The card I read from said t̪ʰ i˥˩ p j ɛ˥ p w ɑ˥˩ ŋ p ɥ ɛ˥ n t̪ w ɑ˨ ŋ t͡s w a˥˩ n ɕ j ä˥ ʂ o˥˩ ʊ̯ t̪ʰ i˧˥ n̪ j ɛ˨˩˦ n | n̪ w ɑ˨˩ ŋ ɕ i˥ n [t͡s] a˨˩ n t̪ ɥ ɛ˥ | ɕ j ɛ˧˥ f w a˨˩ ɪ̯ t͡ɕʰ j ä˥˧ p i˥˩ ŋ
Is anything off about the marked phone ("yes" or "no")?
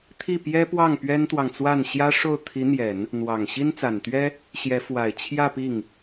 no